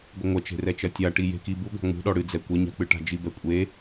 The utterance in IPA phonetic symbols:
ɡʷ ɨ ŋʷ ɐ t͡ʃ e̤ r ɛ t͡ʃ ɐ tʲ a ʈ i j e̤ k i b u ɡʷ a̤ ŋ͡m ṳ ɗ ɔ ɽ ɨ d͡z ɛ kʷ ɛ ɲ a̤ k͡p ɨ ʈ a̤ d͡ʒ i b ɛ kʷʼ e

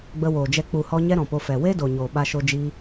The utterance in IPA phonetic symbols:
ɡ͡b ə˧ w oː˨ d͡ʒ ɛ˧ k͡p u˨ h ɔ˧ ɲ ɛ˦ ɾ ɔ̃˨ p o˧ f ɛ˨ w e˦ d o˨ ɲ oː˨ ɓ a˧ ʃ o˧ d͡ʒ iː˧

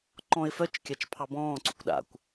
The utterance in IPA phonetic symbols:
ǃ ɔ̃ ɪ̯ f œ t͡ʃ kʲ a t͡ʃ pʰ ɑ b ɔ̃ː ǀ ṵ kʷ ɗ a̰ kʷ

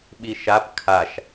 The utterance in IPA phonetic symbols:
ɓ i ʃ a p kʰ a ʃ

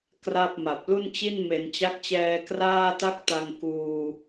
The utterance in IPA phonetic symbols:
k r a˥˩ p̚ m a˨˩ p̚ l u˥˩ n t͡ɕ i˥˩ n m e˩˦ n t͡ɕ a˦˥ k̚ t͡ɕ ɛː˧ k r aː˥˩ t a˥˩ k̚ t a˧ ŋ k uː˧

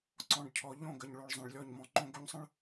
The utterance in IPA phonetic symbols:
ǀ ɔ̃˨ ɖ cʰ ɔ˨ ʎ õ˦˨ ɡ ə˨ ɲ ɭ o˨ ɭ zˤ ə̃˨ ɭ lʲ ɔ˦˨ ɲ m ɔ̃˦ ŋ͡ǃ õ˦ ɡ o˦ ɲ sˤ ə̃˦ ɭ

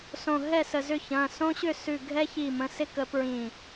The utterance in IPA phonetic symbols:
s õ˧˩ ɦ ɛ˥˨ s ə˧˩ z ʏ˥˨ ç ɐ̃˩˧˩ s õ˦ ɕ ʏ˥˨ s ʉ˧˩ ɡʱ ɛ˦ ç i˧˩ m ə̃˩˧˩ s ɪ˦ k ə˨˩˦ p ɹ ĩ˧˩

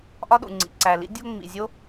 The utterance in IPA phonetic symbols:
ʔ ɒ˥ ɗ ṵ˩ ŋ͡ǀ ḭ˩ ǀ æ˩ l ḭ˥ dʲ o˥ ŋ͡m ḭ˩ zʲ o˥

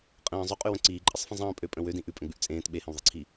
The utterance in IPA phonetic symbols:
qʼ ə̃ː zˤ ø qʼ ʉ w ə̃ ǀ iː ǃʼ ə sˤ f ə̃ zˤ ə̃ː pʼ ø pʼ ə̃ w ø d ĩ ʔ ʉ pʼ ə̃ ɡ͡b ʉ ʔ t͡sʼ ẽː t ɓ e h ə̃ w ðˤ i ǀʰ i

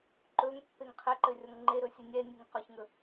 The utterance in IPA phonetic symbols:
ǃ ɵ ŋ pː e ŋ qʰ e ǃ ɘ rʲ ɔ ŋ ŋ͡ǃ e ɾ ɵ sʲ ɨ nʲ ɛ nʲ ɨ ŋ q ɔ ç ŋ ɵ

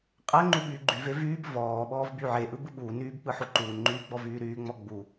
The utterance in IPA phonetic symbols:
qʼ æ ŋ͡ǃ u ɓ yː ɡ͡ǃ y v e v yː b v ɔː ɓ ɔː v b y ʕ e ʔ ɯ b ɯ ɓ uː n yː b k͡p ɯ ħ o ǃ uː n ŋ͡ǃ yː ɡ͡b ɔ v yː ɾ yː ŋ͡m ɔ ɡ͡b u

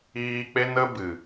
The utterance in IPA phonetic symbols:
iː˧ k͡p e˦ n ə˦ b ɨ˨

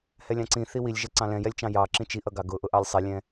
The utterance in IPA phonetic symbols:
h ɛ lʲ ɑ̃ ǀ ĩ θ i w i lʲ ʒ ɛ ǀ ɑ̃ l ɛ̃ j ɛ lʲ t͡ʃ ɑ̃ j ɑ ǁ ĩ t͡ʃ i ʔ ʌ ɡ ɑ ɡ ʊ ʔ ʊ ʔ ɑ lʲ sˤ i lʲ ɛ̃

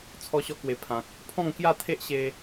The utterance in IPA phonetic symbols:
t͡sʰ ɔ˧ ɕ ɔ˧ k w e˨˩ pʰ ã˨ k̚ | pʰ ɔ̃˥˧ ŋ k j a˥˧ t̪ʰ e˦ ʔ ɕ e˧

